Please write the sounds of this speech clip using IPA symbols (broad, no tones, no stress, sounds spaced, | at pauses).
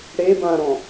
ɽ e b ã ɾ ɔ̃